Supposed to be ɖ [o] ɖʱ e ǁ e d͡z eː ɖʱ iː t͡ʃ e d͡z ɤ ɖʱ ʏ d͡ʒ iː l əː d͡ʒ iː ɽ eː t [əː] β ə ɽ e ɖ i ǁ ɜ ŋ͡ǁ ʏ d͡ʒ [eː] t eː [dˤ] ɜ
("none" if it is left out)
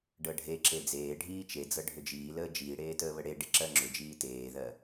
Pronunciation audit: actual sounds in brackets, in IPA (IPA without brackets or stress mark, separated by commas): ɤ, əː, iː, ð